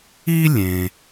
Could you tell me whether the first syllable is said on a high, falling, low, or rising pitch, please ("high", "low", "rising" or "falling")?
high